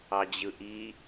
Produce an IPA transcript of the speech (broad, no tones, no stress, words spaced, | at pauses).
ɑd͡ʑɯʔi